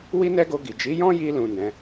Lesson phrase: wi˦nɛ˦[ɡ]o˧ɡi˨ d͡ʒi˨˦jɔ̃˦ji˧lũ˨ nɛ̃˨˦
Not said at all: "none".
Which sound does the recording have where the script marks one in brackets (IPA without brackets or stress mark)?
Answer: ɡ